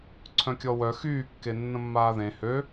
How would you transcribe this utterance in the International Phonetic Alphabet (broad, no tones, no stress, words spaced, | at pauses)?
ǀʰœ̃kʲɔwœ xyːkːe nːə̃mːaːðẽ hø